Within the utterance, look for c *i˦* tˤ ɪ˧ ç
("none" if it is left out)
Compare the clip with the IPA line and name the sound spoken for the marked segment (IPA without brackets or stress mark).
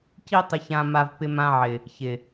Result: i˦